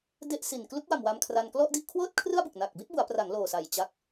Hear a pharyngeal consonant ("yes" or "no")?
no